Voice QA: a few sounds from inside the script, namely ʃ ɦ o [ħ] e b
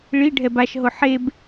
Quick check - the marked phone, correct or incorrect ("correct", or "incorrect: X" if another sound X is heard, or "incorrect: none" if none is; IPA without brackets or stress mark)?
correct